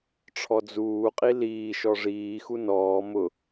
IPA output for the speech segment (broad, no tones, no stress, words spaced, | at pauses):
ʈ͡ʂʰɔd͡zuːqʼi liːʃɔ ʐiːxu nɔː mʊ